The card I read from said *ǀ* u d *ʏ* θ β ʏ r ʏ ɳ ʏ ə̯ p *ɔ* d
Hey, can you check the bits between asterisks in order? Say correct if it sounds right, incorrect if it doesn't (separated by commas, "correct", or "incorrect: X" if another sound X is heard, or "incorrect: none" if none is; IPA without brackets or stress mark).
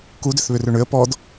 incorrect: k, correct, correct